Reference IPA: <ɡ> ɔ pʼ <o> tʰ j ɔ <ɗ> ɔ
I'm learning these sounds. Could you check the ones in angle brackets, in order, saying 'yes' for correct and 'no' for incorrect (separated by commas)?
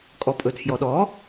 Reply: no, no, yes